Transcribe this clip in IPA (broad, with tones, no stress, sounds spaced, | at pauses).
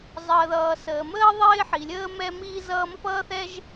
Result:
zˤ əː˩ ð ʌː˩ s əː˩ m əː˥ ðˤ ɪː˥ ħ i˩ lʲ əː˥ m ɛ˥ m iː˥ z ʌː˥ m ʌ˥ p ʌː˥ θ ɛ˥ ʒ